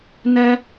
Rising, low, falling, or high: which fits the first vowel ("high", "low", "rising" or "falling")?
high